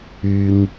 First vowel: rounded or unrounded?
rounded